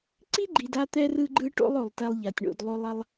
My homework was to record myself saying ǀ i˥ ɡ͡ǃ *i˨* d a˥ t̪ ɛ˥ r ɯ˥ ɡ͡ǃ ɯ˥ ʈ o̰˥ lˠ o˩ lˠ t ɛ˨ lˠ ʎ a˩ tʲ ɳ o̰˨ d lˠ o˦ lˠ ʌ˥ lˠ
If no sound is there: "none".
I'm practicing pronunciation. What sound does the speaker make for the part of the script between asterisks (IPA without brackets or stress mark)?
i˨